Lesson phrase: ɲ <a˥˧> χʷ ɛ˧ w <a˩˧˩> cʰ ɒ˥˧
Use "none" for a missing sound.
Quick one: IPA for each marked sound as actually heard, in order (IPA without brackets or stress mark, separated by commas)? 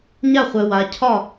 a˥˧, a˧